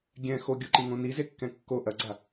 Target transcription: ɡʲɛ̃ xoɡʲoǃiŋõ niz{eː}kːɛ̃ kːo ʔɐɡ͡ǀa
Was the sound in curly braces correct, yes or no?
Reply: no